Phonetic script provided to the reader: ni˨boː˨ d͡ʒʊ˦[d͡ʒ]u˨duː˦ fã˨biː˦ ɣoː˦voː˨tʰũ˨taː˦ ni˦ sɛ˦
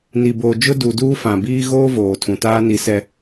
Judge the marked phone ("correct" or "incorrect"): incorrect